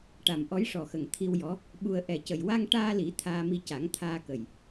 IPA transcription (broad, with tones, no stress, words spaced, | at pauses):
ʈa˨˩mʔɔ˧˥jʂɔ˨˩xə˨˩ŋ t̪ʰi˧wjɔ˧˥ | ɓu˧ə̯ ʔɛ˨˩cə˨˩j wa˧ŋ ʈaː˧li˨˩˦ t̪ʰaː˧mi˧ ca˨˩˦ŋt̪ʰaː˧kə˨˩j